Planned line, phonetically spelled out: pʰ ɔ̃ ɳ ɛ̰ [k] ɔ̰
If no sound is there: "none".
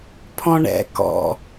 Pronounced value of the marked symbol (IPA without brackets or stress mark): k